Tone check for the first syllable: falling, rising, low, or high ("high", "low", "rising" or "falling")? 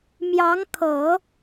rising